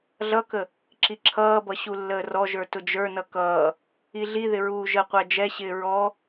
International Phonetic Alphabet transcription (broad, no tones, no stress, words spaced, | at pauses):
ɮʌkə | ǁiǁʰʌːbʌ ɕulːəːrɔʒə˞ tʊd͡ʒə˞nʌ kʌː | iɮiðɪ ɹuːʒəqʷæ d͡ʒɛɕɪː ɹɔ